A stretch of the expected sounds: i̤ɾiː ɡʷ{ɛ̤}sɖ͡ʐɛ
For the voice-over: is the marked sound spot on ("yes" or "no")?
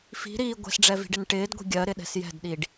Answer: yes